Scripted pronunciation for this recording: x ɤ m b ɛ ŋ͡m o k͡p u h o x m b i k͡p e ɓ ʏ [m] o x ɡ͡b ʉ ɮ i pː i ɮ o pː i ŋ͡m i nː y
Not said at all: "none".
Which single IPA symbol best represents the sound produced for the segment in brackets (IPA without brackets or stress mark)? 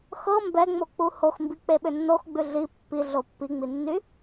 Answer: nː